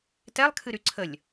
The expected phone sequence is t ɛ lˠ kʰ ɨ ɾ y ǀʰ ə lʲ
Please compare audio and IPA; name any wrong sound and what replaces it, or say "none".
none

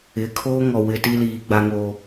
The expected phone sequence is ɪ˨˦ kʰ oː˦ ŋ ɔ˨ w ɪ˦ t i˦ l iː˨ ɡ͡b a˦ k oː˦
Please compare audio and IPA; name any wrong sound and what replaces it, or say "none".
k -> ŋ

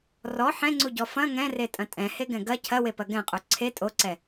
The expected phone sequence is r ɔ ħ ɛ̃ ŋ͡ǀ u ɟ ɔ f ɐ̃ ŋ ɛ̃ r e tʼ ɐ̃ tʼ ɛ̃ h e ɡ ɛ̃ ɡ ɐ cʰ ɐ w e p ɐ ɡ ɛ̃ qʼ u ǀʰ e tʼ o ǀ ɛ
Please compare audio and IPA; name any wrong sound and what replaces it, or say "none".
none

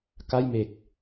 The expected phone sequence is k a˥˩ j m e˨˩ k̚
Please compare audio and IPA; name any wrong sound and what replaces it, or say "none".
none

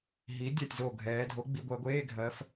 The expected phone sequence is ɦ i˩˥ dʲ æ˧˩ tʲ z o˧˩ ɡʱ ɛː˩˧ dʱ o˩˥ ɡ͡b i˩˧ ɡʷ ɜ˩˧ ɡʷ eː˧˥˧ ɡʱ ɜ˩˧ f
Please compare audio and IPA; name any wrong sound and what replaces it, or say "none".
æ˧˩ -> ɜ˧˩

